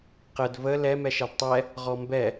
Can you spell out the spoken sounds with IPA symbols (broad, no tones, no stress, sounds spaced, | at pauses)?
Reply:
q ə d v ə l ɛ m ɛ ʃ ɛ d tˤ ɛ | ʁ ɔ m b ɛ